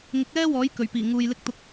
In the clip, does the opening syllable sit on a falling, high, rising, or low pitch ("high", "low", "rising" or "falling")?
rising